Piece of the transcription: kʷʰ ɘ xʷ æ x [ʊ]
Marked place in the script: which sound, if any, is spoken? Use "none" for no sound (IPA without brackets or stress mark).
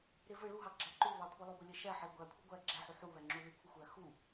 u